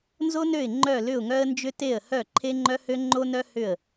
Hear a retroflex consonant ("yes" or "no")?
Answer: no